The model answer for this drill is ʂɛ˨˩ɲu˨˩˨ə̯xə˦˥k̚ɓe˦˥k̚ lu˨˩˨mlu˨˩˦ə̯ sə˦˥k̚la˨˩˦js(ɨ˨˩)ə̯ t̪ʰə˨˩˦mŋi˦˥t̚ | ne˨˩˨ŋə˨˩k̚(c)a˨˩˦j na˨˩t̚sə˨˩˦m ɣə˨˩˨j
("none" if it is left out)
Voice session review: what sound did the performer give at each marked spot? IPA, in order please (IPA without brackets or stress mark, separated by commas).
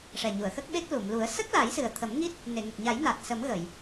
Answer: ɨ˨˩, ɲ